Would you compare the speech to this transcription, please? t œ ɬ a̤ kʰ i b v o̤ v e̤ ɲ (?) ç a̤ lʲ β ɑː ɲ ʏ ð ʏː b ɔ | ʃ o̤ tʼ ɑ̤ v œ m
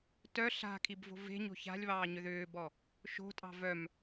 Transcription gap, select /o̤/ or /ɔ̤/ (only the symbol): o̤